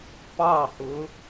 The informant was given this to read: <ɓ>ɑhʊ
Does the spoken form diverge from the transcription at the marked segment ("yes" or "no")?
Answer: yes